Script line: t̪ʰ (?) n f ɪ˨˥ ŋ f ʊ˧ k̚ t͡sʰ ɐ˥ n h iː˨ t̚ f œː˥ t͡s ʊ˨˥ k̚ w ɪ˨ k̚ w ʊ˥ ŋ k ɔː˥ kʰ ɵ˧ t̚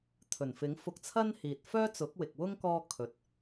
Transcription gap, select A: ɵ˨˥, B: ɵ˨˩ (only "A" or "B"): B